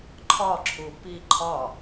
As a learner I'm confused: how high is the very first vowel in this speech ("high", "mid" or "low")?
low